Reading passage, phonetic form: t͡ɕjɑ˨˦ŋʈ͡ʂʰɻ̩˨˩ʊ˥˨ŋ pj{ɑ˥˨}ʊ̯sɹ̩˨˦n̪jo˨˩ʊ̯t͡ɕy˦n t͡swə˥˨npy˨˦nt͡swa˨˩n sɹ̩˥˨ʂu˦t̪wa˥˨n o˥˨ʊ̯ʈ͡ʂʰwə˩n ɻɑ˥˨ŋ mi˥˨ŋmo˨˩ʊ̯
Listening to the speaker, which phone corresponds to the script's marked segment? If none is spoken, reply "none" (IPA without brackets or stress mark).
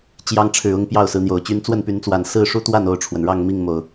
ɑ˥˨